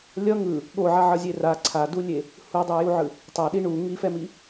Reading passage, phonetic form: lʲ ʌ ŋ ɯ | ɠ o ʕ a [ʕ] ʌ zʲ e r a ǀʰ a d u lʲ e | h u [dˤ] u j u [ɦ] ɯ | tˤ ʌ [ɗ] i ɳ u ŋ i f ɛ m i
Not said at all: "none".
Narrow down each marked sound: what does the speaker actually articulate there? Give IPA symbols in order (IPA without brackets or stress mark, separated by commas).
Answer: ʕ, dˤ, ʕ, ɗ